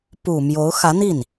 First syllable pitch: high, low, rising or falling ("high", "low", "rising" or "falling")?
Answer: low